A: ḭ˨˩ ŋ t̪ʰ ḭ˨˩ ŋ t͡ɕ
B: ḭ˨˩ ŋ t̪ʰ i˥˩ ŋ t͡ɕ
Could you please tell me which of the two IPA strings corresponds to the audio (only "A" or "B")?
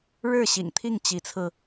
B